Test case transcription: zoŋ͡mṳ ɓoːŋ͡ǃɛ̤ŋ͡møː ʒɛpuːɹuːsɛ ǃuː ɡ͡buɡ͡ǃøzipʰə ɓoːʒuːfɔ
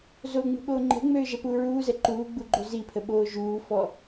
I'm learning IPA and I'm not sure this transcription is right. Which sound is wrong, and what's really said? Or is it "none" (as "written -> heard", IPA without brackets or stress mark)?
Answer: s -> z